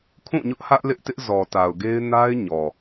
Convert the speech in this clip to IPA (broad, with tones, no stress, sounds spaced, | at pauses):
kʰ ũ˦˨ ɲ ʊ˦ ʔ h ä˦ ʔ l ɪ˦ ʔ t ɪ˦ ʔ z ɔ˨ t a˨ ʊ̯ ɡ e˦ ɪ̯ n a˦ ɪ̯ ɲ ɔ˨